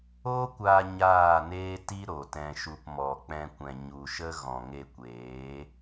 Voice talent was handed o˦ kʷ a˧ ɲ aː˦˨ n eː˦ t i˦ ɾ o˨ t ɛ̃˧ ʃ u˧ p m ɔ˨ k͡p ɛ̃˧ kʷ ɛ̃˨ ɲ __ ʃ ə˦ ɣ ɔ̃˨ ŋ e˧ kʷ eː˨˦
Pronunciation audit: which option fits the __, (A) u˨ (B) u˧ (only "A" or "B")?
A